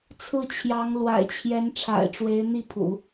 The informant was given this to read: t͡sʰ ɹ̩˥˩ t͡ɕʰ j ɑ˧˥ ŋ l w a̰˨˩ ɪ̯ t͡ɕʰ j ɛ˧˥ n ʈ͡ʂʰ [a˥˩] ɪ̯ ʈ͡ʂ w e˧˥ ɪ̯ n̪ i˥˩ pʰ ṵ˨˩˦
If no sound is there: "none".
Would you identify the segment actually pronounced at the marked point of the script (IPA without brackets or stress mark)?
a̰˨˩